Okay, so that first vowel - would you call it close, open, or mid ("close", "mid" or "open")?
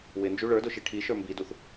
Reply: close